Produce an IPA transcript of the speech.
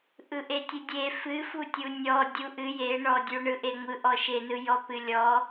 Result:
ʔ ɯ ʔ e tʲ ɨ dʲ e f ɨ f u tʲ u nʲ ɔ dʲ u ʔ ɨ j e ɳ ɔ dʲ u ɳ ɯ ʔ e ŋʷ ɯ ʔ ɔ ʃ e n ɯ j ɔ p ɨ lʲ ɔ

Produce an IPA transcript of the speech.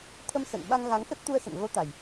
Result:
t̪ʰ ə˧ m s ə̰˧˨ n ɓ a˧ ŋ ɣ a˨˦ ŋ x ə˦˥ t̚ t̪ u˧ ə̯ s ə̰˧˨ n ɣ o˨˦ t̪ a˨˩ j

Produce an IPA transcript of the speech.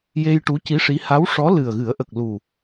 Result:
j e˧ j ʈ u˧˥ c i˧˥ ʂ i˧˥ h a˧˥ w ʂ ɔ˧˥ l ɨ˨˩ ə̯ ɣ ɨ˨˩˦ ə̯ ʔ ə˨˩ k̚ l u˨˩

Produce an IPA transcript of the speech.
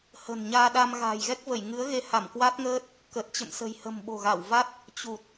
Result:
h ə̤˨˩ n ɲ aː˧ ɗ a˧ m ɣ a̤ː˨˩ j ɣ ɛ˦˥ k̚ v ə˧˩ j ŋ ɨ˨˦ ə̯ ɣ e˧ h a˧˩ m k w a˦˥ t̚ ŋ əː˦˥ t̚ | k ə˨˩ t̚ t͡ɕ ə̰˧˨ m s ə̤˨˩ j h ə̤˨˩ m ɓ o̤˨˩ ɣ a˧˩ w v a˦˥ t̚ | t͡ɕ u˨˩ t̚

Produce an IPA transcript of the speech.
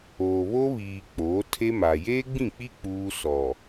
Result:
oː˨ β o˦ β iː˨ k͡p oː˨˦ tʰ e˦ m a˨ j eː˦ ɡ͡b ĩ˦˨ k͡p i˦ k͡p uː˦ s ɔ˨

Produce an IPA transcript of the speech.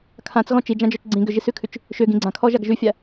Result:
kʰ ã t͡s ɣ ɔ̃ t͡ʃ i d͡ʒ ã d͡ʒ ɔ t͡ʃ ɡ͡ǀ ĩ ɡ ʏ ʒ i s ʉ kʰ ʉ t͡ʃ | ʃ ʏ ɡ ĩ ɡ͡ǀ ã kʰ ɔ ʒ a ɡ ʒ ʉ fʲ a

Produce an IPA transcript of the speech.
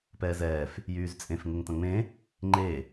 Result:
p ɛː z ɛː f | j yː z t͡sʼ ẽ f ŋ ɪ ŋ t ɐ̃ ŋ͡m ẽ | ŋ͡ǃ e

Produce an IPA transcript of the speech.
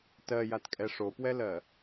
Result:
t ɜ j a t kʼ ɛ ʂ o p w ɛ l ɜ

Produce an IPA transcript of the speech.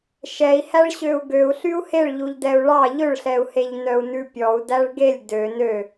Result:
ʃ ɛ i̯ h æ ɭ ɕ ø u̯ ɡ ø u̯ ɬ y u̯ h e ɭ ʎ u ʎ d ɛ u̯ ɭ ɑ ʎ ɵ ɭ ɬ ɛ u̯ h e ʎ n œ u̯ n ʉ pʲ ɔ u̯ d æ ɭ ɡ e lʲ d ø n ø

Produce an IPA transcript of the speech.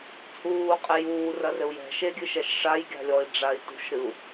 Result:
t͡sʼ uː qʼ e j uː r ɐ r ɘ u̯ j ɛ̤ ʃ e ɡʲ ɨ ʃ ɛ ʃ ʂ a j ɡʲ a̤ lʲ ɔ i̯ ɖ͡ʐ a i̯ t ṳ ʃ ɾ ɨ u̯

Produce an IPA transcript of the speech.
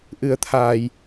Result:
ʔ ɨ˨˩˦ ə̯ t̪ʰ aː˨˩˨ j

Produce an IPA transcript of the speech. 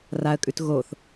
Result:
r a ə̯ kʼ ʉ t ɣ o θ

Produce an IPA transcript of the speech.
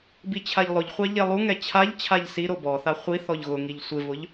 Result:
b i t͡ɕʰ a ʎ lˠ ʊ ʎ χʷ a ʎ e lˠ u ŋ ɛ t͡ɕʰ a ʎ t͡ɕʰ a ʎ s i ɾ o b ɔ θ a χʷ i θ ɔ ʎ ɣ ʊ ŋ i ʎ sʷ ɪ v ʊ ʎ

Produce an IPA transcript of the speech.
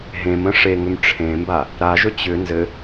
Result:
ɦ ẽ m ə̃ ʂ e ŋ ʏ m ʈ͡ʂʰ ẽ m b a | ɾ a ʒ ɵ t͡ɕ ʏ n z ɘ

